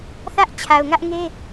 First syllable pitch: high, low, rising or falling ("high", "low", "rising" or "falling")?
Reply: high